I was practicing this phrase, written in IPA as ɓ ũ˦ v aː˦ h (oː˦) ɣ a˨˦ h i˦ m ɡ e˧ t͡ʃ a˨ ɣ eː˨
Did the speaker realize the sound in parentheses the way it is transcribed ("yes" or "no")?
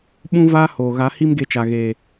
no